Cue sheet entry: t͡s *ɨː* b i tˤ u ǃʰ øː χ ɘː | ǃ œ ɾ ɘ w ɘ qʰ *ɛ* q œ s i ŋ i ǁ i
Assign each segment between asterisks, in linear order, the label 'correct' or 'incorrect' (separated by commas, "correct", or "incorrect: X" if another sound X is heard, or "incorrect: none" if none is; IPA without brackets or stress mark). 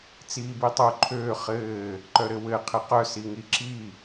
incorrect: iː, correct